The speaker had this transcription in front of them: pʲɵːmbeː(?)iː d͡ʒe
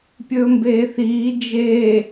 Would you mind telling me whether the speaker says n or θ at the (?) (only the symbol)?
θ